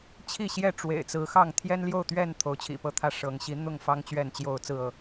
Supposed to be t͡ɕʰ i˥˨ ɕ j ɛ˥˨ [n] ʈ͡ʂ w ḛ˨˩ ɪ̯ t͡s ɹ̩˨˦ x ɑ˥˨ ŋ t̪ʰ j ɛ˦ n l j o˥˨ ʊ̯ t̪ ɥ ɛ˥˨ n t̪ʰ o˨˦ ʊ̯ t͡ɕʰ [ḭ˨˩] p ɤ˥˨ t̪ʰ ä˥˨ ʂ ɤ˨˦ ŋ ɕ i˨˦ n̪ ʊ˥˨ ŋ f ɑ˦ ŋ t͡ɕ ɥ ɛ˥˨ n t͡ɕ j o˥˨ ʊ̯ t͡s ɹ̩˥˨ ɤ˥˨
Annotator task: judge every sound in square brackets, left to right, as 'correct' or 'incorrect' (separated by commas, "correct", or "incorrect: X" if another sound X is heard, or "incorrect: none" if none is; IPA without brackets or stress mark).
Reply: incorrect: none, correct